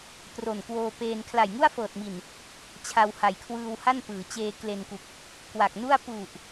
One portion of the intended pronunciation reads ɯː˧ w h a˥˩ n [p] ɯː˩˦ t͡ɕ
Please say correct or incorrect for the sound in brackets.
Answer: correct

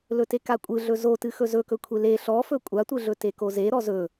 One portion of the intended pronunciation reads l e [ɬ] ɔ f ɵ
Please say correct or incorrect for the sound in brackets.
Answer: correct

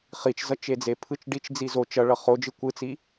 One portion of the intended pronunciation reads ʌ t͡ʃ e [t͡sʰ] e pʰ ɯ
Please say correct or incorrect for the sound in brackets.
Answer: incorrect: d͡z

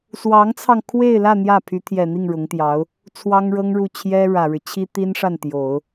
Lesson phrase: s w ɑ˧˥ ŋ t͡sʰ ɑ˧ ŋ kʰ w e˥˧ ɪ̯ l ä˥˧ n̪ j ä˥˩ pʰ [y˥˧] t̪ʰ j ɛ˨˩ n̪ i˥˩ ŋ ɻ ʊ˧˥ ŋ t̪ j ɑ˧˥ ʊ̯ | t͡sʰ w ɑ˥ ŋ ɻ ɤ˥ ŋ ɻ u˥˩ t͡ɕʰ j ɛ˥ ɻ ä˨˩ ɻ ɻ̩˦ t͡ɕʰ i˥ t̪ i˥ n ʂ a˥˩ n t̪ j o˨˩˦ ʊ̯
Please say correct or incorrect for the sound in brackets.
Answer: incorrect: y˧˥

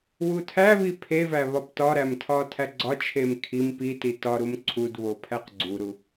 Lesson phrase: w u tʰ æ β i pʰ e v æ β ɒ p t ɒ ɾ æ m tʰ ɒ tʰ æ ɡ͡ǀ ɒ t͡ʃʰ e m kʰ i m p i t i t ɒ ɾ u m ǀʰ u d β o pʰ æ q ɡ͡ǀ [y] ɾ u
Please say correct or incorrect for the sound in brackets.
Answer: incorrect: u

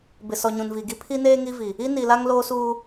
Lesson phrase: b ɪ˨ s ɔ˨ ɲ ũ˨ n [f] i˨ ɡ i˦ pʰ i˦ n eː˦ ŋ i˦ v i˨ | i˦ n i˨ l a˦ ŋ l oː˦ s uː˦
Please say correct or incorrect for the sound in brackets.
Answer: incorrect: v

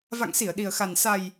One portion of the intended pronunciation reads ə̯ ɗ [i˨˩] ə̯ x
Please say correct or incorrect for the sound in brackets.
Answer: correct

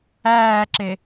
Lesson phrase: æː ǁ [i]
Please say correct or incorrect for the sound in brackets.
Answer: incorrect: e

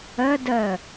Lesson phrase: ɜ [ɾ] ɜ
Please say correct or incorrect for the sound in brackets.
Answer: incorrect: d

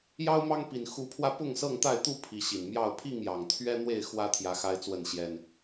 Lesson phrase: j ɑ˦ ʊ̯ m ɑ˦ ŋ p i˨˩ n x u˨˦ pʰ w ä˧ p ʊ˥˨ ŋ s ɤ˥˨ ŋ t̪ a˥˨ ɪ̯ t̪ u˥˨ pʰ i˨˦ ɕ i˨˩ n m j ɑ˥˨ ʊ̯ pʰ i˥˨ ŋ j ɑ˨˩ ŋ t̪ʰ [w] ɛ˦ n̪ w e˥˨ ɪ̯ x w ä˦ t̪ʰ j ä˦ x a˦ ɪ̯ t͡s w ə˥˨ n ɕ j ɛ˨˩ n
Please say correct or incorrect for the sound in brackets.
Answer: incorrect: ɥ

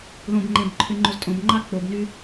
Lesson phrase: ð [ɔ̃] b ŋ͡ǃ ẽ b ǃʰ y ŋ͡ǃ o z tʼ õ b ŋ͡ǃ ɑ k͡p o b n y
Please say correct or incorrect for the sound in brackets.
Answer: incorrect: õ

